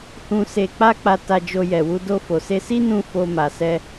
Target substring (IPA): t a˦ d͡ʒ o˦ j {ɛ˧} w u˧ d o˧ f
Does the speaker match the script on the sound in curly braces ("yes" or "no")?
yes